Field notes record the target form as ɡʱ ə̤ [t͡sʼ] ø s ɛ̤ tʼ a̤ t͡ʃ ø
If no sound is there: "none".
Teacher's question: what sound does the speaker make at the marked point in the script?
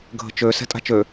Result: t͡ʃ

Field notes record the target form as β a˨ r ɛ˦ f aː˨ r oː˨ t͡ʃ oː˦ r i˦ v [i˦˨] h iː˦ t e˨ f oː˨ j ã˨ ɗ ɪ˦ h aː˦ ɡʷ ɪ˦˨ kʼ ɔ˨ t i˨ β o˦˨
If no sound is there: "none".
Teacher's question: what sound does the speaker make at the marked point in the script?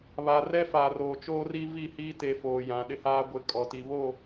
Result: i˦˨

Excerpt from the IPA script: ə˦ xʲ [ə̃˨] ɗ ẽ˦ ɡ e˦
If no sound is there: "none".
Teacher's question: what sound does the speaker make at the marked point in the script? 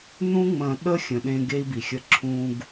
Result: ə̃˨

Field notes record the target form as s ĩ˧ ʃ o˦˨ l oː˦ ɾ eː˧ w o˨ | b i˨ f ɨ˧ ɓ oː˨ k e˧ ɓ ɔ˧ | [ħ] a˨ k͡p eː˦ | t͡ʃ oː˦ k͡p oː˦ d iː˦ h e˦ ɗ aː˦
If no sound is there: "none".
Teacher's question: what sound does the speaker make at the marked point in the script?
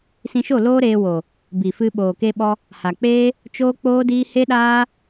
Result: h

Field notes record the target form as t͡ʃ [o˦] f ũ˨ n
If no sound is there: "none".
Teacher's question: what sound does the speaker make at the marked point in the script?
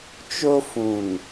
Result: o˦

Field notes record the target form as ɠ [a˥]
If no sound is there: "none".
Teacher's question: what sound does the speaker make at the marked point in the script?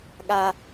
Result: a˥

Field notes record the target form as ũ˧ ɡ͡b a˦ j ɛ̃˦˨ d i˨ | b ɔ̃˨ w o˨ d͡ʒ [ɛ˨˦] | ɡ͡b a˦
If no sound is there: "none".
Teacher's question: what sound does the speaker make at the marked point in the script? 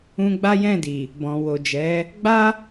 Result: ɛ˨˦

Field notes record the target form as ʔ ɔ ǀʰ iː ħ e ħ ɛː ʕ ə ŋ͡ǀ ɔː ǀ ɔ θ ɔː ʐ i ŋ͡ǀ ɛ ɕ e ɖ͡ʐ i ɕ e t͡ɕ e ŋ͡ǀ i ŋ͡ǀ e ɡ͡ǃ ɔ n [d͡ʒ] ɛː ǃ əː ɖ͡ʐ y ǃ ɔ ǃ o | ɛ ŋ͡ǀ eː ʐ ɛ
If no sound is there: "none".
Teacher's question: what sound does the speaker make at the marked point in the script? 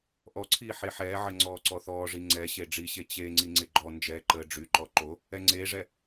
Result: d͡ʒ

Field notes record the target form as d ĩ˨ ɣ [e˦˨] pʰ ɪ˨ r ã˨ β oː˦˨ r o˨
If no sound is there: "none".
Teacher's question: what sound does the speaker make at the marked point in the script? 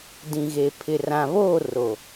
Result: e˨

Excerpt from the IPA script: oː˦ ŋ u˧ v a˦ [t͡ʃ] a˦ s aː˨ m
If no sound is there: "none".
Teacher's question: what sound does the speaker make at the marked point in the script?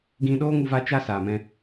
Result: t͡ʃ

